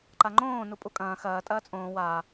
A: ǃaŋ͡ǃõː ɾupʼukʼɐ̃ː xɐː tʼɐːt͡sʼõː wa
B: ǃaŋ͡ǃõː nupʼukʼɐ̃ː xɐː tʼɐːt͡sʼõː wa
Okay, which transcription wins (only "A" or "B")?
B